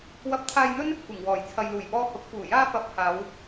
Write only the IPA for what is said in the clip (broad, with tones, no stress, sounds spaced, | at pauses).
w ɐ˧ p̚ t̪ʰ aː˧ j n̪ ɵ˥ n | kʷ ɪ˨˩ ŋ w ɔː˨˩ j t͡sʰ ɐ˨ j l uː˨˩ j p ɔː˧ h ʊ˨ k̚ f uː˨˩ j aː˧ f ɐ˨ p̚ h aː˨˧ w